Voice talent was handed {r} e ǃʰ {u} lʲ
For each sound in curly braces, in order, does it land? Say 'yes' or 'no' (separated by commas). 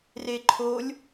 yes, no